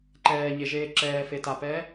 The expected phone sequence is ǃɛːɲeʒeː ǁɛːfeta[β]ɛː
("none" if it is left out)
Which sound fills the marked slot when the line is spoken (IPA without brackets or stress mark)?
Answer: p